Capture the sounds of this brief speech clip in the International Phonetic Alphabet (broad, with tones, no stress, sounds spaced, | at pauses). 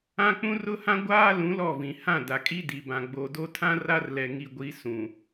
ã˦ k͡p ũ˦ r ʊ˦ h ã˦ ɡʷ aː˦ l ũ˨˦ l ɔ˦˨ v ĩ˨ h ã˦˨ d a˨ kʼ i˦ d i˨ b ã˨ ɡ͡b o˨ d o˦ tʰ ã˦ r a˦ r l ɛ˨ ŋ i˨ ɡʷ i˨˦ s ũ˨